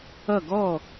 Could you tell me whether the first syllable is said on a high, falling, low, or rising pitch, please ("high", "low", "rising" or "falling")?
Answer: falling